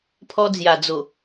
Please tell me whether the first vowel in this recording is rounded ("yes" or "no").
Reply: yes